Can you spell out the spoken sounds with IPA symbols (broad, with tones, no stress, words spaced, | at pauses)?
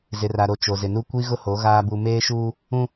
zɪ˨ra˨ɾo˨ t͡ʃo˨zɪ˨nu˦ kʷi˦ɣʊ˦ho˨˦ ɣaː˨ bu˨meː˦ʃuː˦ | ũ˦